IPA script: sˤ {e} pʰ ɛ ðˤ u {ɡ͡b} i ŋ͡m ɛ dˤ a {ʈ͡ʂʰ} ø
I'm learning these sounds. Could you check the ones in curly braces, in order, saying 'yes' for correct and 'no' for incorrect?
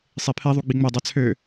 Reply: yes, yes, no

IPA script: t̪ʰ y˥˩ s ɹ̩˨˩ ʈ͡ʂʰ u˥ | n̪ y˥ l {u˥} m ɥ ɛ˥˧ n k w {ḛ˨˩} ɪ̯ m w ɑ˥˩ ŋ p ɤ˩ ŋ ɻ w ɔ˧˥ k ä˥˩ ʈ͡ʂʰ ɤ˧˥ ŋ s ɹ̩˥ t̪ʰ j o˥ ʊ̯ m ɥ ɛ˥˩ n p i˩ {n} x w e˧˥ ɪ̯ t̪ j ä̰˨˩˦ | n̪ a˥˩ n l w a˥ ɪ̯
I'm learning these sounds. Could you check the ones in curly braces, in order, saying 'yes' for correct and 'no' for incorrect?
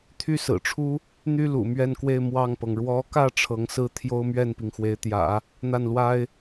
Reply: no, no, no

